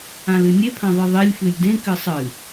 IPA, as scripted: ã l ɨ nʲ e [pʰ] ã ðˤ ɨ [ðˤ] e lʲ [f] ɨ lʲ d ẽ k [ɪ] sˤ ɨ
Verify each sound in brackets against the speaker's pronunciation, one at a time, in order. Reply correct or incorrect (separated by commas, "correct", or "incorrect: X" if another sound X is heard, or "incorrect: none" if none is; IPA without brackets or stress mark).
correct, correct, correct, incorrect: ɨ